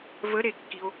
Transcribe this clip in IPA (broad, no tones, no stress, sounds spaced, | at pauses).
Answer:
v ə ɾ e kː i o̯